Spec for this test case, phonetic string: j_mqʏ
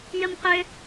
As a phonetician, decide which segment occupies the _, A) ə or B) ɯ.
A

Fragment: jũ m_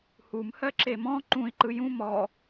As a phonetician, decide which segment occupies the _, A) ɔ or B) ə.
A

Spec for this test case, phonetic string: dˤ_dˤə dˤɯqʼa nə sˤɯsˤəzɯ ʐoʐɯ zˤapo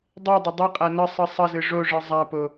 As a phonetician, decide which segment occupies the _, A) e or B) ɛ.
B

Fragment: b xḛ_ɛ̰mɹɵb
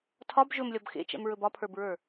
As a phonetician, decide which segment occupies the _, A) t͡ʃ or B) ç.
A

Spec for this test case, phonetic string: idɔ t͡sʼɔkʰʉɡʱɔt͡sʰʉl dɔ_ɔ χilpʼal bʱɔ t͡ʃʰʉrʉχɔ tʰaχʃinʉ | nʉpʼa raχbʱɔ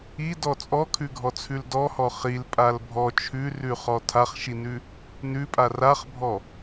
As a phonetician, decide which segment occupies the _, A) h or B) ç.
A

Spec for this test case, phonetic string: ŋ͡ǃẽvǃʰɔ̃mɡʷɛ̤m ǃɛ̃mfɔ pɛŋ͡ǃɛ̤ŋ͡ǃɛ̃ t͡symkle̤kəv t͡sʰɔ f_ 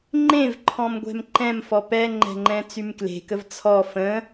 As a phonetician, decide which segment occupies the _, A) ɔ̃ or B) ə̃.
B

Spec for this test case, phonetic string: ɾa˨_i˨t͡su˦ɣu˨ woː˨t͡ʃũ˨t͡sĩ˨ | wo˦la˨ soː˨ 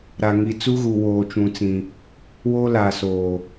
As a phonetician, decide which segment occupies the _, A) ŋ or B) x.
A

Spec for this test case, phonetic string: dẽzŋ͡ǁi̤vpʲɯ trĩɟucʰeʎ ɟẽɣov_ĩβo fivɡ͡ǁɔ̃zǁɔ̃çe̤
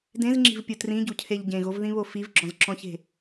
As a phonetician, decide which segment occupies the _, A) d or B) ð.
B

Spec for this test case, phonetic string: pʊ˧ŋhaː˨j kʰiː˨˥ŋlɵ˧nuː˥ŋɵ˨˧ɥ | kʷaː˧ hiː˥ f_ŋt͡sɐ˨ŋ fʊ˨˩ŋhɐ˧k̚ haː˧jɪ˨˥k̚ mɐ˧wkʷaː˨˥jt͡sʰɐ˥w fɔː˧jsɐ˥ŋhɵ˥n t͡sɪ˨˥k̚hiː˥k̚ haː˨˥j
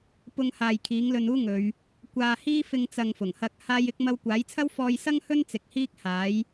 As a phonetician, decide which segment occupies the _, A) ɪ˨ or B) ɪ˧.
B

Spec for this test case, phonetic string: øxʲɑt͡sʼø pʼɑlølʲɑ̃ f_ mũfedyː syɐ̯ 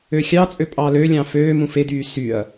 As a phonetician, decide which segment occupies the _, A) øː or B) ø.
A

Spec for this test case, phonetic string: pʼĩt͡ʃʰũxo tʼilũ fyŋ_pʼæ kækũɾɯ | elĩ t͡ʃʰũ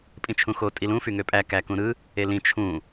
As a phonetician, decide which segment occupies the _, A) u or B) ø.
B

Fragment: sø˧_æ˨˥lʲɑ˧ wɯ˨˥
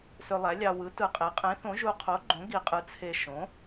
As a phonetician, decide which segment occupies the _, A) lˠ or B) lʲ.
A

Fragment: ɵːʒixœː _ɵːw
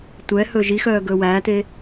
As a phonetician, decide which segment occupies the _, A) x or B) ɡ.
B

